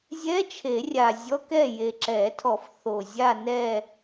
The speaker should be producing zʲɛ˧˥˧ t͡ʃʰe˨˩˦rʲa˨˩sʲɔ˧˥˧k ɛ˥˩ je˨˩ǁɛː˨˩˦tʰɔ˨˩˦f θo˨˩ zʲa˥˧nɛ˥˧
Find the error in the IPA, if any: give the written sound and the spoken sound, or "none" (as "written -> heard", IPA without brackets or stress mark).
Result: sʲ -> zʲ